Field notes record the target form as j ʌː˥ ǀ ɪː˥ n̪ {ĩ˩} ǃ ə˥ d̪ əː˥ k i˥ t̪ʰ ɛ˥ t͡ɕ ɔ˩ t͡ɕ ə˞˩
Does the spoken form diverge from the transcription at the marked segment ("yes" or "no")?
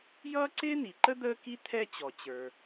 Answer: yes